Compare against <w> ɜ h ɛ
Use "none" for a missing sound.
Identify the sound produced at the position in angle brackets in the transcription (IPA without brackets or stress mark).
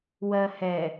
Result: w